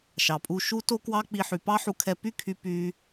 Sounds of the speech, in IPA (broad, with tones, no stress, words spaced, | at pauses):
ʃɑ˩pʼu˧ ʃu˥to˥kwɑ˥k͡pi˧ ħy˩pɑ˥ħu˧kʰɛ˧ py˥kʰy˧ py˧